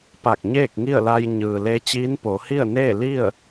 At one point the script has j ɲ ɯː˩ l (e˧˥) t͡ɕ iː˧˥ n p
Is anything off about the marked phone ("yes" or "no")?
no